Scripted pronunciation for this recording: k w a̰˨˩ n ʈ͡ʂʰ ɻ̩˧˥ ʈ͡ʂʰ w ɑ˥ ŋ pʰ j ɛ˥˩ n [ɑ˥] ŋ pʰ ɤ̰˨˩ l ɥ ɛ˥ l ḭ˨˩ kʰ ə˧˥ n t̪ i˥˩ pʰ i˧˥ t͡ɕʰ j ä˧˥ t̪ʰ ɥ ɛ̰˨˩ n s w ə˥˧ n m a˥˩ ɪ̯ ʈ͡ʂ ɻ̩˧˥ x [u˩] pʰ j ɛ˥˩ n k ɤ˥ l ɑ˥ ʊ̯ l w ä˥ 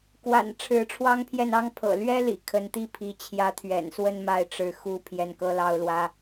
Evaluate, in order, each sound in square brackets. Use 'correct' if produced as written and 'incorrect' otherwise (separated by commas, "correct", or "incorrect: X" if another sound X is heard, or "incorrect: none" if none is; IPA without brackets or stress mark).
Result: correct, incorrect: u˥